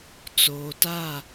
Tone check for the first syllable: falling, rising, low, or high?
low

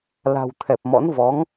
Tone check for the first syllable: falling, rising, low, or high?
low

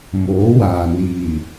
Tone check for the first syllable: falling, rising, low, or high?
rising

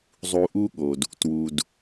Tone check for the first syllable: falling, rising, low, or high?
low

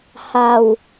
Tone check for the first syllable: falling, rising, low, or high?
low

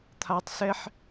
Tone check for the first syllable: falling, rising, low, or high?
high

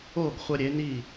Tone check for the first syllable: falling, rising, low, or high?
falling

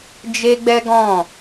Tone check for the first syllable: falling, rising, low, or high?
high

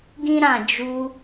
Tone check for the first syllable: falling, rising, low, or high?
high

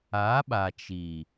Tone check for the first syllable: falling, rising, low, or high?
rising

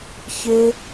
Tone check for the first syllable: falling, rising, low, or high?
high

